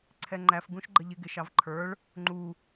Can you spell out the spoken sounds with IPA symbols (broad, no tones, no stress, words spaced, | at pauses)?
ǀʰɛŋ͡ǃæf ɡũʃɡ͡ǃəʎɪ ɡɪʃɑvǃʰə˞ɭ | ŋ͡ǃu